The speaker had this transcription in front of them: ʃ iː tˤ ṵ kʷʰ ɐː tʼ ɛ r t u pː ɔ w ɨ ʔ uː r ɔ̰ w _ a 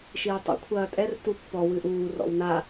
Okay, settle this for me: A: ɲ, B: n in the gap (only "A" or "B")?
B